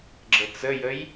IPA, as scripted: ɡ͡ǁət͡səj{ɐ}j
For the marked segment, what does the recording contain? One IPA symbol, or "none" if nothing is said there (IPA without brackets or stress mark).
ə